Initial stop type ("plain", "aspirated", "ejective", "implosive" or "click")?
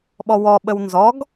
implosive